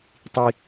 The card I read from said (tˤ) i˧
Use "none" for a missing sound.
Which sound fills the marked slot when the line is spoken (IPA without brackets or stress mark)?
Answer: tˤ